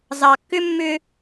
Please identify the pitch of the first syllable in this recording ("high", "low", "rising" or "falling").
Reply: low